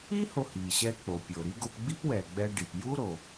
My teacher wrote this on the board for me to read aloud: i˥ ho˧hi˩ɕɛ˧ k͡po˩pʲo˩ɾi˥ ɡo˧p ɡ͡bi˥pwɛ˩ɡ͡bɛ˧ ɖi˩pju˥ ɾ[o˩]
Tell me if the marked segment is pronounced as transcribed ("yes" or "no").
yes